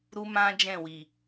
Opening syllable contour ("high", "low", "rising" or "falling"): high